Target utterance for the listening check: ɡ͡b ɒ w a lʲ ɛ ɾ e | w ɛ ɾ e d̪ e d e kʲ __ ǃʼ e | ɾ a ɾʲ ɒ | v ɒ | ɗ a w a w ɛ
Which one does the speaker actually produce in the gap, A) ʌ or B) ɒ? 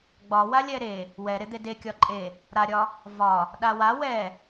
B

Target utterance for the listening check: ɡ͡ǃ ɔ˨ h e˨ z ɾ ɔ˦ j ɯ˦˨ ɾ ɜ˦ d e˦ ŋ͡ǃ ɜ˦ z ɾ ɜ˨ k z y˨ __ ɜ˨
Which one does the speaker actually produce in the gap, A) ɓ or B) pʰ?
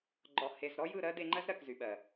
A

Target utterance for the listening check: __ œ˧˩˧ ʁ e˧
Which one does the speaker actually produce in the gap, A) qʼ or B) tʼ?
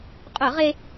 A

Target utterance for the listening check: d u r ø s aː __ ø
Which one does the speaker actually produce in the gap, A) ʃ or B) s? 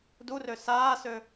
B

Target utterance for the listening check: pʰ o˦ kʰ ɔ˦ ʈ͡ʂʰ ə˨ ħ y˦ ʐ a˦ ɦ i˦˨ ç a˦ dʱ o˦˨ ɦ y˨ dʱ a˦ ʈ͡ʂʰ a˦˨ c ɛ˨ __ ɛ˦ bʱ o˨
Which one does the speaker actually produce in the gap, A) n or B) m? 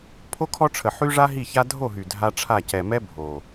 B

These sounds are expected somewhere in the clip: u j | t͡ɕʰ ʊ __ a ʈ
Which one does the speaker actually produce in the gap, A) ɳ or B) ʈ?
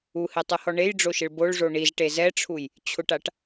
B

